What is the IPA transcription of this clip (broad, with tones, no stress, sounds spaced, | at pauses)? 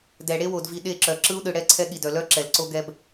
d ɛ˨ ɽ e˦ w o˨ d v i˨ ɗ e˦˨ ǁ œ˨ ǁ ɯ˦ u̯ ɗ ɯ˨ ɽ ɛ˦ ǀʰ ɛ˦ ɠ i˨ d œ˨ l œ˦ ǁ ɛ˨ l ǀ o˦ ɡ ɛ˦ b